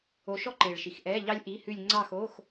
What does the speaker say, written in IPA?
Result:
o˧ʃɔ˥ǃe˨˩ɭ ʃi˨˩xʔɛː˧˥˧ʎɑ˥lʲ ʔi˧˥˧hʉ˥˧lʲ ŋ͡ǀɑ˥˧xo˧˥˧x

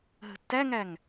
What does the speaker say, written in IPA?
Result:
ɦə̤tːæŋæŋ

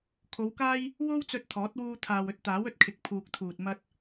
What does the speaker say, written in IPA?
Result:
kʰo˨˧wkaː˥j | wo˥wt͡sɵ˧t̚ t̪ʰɔː˨˥t̚ wuː˧t̪ʰaː˨wɵ˧t̚ t̪aː˨˥wɵ˨t̚kʰɪ˨˥k̚ pʰuː˨k̚t̪ʰuː˨t̚ mɐ˥t̚

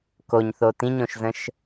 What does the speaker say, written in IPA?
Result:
koɲθo tĩɲõʃzə̃ʃ

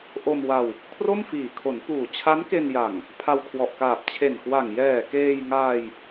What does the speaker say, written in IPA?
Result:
ʔo˧mwa˧w | kʰro˥˩mfiː˨˩ kʰo˩˦npuː˨˩ t͡ɕʰa˦˥nke˧nja˨˩ŋ | pʰa˧wkʰwɔ˨˩ʔkaː˨˩p̚ t͡ɕʰe˨˩nkwa˨˩ŋ jɛː˨˩keː˧j ŋaː˧j

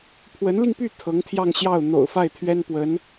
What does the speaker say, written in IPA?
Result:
pʰwə˧˥nli˧ŋpy˥˩ t̪ʰɤ˧˥ŋt̪ʰjɑ˥˧ŋɕjɑ˥˩ʊ̯ n̪o̰˨˩ʊ̯fa˥˩ɪ̯ t̪ʰɥɛ˥n pwə˧˥n

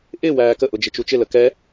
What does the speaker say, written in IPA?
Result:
ʔɪ wæːkəʔʊ d͡ʒɪt͡ʃut͡ʃɪlə kɛ

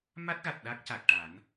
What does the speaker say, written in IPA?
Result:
ma˦˥t̚ɣa˨˩t̚ ɗa˦˥k̚ca˨˩k̚ ʈa˨˩˦n

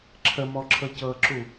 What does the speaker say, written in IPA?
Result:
ǁʰəmɔǁʰɤ cɤǁu

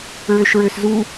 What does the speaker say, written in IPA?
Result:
ɹøʃɹøszu

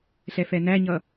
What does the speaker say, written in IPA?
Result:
ɬɛfɛnæɲʌ

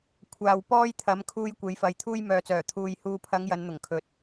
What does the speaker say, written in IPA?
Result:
kʷʰaː˨wpɔː˥jt̪ʰɐ˨˥m kʰuː˧j kʷe˨˥jfɐ˨jt̪ʰuː˥j mœː˨t͡sœː˨˩ t̪ʰuː˨j huː˨pʰɐ˨˧ŋ jɐ˨˧nn̪ʊ˨˩ŋkʰɵ˨˥t̚

